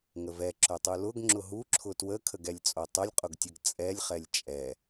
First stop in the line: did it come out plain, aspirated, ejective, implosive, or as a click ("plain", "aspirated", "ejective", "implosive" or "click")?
click